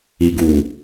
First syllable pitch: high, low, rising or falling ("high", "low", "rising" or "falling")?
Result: low